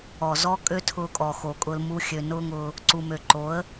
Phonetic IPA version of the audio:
ɔ˨ z ɔ˦ kʼ ø˦ tʰ ʊː˧ kʼ ɔ˨ x o˨ kʼ ʊ˧ l m u˧ xʲ ø˨ n ʊː˦ ŋ ʊː˧ | ǀ u˨ m ø˨ ǃ o˨˦ ə̯

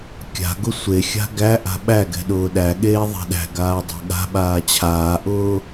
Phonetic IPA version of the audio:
kʲ a̤ ɡ ʊ sʷ e xʲ a̤ ɡ æ ʔ a̤ ɓ æ ɡ ɛ̤ ɗ ʊː ɗ æ ɠ eː ðˤ ɛ̤ ɗ æ̤ ɡ aː dˤ æ̤ ɠ a̤ ɓ aː t͡ɕʰ aː ʔ ʊː

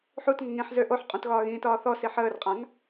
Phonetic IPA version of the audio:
ħ u t ŋ ə ŋ ĩ ħ z ø ʔ o ħ qʼ ũ t ɣ ɒː ɣ ĩː t ɒː θ ɔ s i ħ əː r qʼ ã ŋ

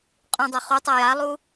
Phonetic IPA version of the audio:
qʼ ũ dˤ o χ u tˤ ɤ j a lˠ u

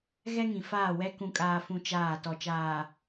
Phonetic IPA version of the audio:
ɣ ɛ˦ ŋ ĩ˨ f aː˦˨ w ɛ˦ k ũ˨ kʼ aː˨ f ũ˨ t͡ʃ aː˦˨ t ɔ˨ t͡ʃ aː˨

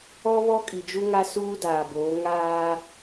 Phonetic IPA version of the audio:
ɔ˦ β ɔ˦ kʼ i˨ d͡ʒ u˦ ŋ a˦ s uː˦ d aː˨ b oː˨˦ ŋ aː˦

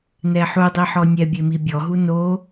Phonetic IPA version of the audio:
n ɛ ħ u dˤ i ħ ɔ nʲ ɛ bʲ e m i bʲ ɔ ɦ u n o

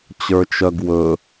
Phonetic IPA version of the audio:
t͡ɕ ə˞ t͡ʃ œ ɡ w ɵ

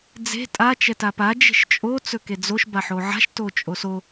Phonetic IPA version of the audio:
d͡z e̤ tʼ a t͡ʃ ɛ t a p a d͡ʒ e̤ ʃ t͡ʃʼ o t͡s ɵ k e d͡z o ʃ b a ħ o ʕ a̤ ʃ t o t͡ʃʼ o s o

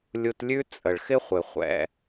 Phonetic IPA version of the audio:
lʲ u˧ t lʲ ʉ˥ t͡sʼ ə˩ ɭ x ɪ˥ χʷ ɪ˩ χʷ ɛ̰˧

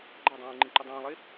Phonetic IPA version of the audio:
ɡ͡ǃ æ dˤ ũː ɪ̯ ŋ͡ǃ ĩ ǃ i dˤ ũː lˠ e

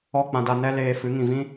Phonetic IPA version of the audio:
ɔ˦˨ k͡p ã˧ d a˧ n ɛ˦ l eː˧ f ɨ˨˦ ŋ ĩ˨ v ĩ˦

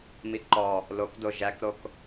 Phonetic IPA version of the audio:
m i ǃ ɔ | l o k d o ʒ æ k ɾ o k

